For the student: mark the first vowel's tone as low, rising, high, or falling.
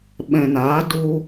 low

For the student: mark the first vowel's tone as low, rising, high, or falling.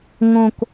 low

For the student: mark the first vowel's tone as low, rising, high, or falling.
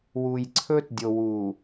low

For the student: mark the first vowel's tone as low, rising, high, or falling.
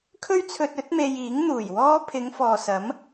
high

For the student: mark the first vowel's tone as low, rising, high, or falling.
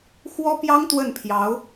high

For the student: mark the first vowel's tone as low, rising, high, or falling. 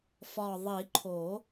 low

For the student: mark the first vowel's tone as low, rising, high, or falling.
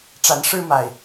rising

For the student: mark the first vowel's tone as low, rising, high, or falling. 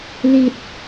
low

